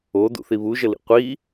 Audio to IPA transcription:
o d ṵ θ i β u ʒ ə l ḭ qʷ i

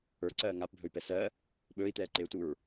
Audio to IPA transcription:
ə˞ ǀ ɜː ŋ a p bʱ ɵ y̯ p ɛ s ɜ | ɓ ɵː i̯ t̪ ɛː ǃ e u̯ t u ɹ

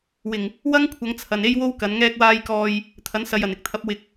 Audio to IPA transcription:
w ɪ˨˩ ŋ | w ɐ˥ ŋ kʷʰ ɐ˨˧ ŋ t͡sʰ ɐ˨ n e˥ j w o˥ w k ɐ˨˧ n ŋ ɛː˧ k̚ w aː˧ j k ɔː˧ j | t̪ʰ ɐ˨˥ n s ɐ˨ j ɐ˨˩ n ɪ˧ k̚ t̪ʰ ɐ˨˥ p̚ w ɪ˨ k̚

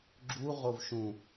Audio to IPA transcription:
ɡ͡ǁ u ʁ o v ʃ ũ

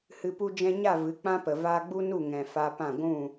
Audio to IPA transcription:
h ɨ˨ p u˧ d͡ʒ ɛ̃˧ ɲ a˦˨ v ɨ˨˦ k͡p ã˦ p ə˨ v aː˧ ɡ͡b u˦ n u˦˨ ŋ ɛ̃˨ f a˧ p ã˦˨ ɡʷ ũ˦˨

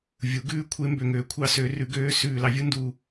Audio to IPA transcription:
vʲ u˩˥ ɡ ʉː˥ kʷʰ e˧˥ m b ø˧˩ ŋ øː˩˥ kʷʰ ɑ˧˥ s ø˩˥ r ʉ˩˥ ɡ øː˧˥ s ʉː˧˩ l ɑ˩˥ vʲ u˥ n d uː˧˩

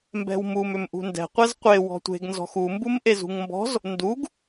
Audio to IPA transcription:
m b ɛ̤ w m u m ʏ m ʔ ṳ n d ɛ̤ qʷ ɛ z qʷ e w ɔ̤ tʷ e̤ ɡ n z ɔ̤ x u m b u m ʔ e z ṳ ŋ m b ɔ̤ z | n d u ɡ

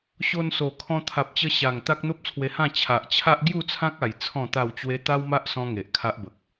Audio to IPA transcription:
ɕ o˧ n s o˨˩ kʰ ɔ̃˧ t̪ʰ a˨ p̚ t͡ɕ ə˧ ɕ a˨˩ ŋ t̪ a˦ k̚ n̪ o˦ p̚ t͡sʰ w e˧ h ã˥˧ t͡ɕʰ a˨ ʔ t͡ɕʰ a˦ ʔ ɡ j u˥˧ t͡sʰ ã˦ k̚ a˨˩ j t͡sʰ ɔ̃˥˧ t̪ a˥˧ w t͡ɕ w e˦ t̪ a˦ w m a˦ ʔ s ɔ̃˦ ŋ e˨ ʔ kʰ a˦ ʔ b ə˨ k̚

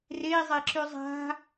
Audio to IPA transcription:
r e i̯ zˤ e ǁ y zˤ a̤

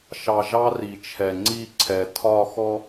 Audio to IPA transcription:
ʃ ɑ˨ ʒ ɑ˦ r i˨ t͡ʃʰ ɛ˨ ŋ͡ǀ i˦˨ ǀʰ ɛ˨ tʰ ɒ˦˨ x ɔ˦

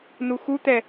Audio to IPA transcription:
n u x u t̪ ɛ

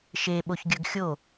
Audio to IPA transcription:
ʃ e ɓ o ç ɡʲ ɵ ɡ xʲ o

